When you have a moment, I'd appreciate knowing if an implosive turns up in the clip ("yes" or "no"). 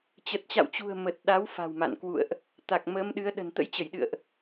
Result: yes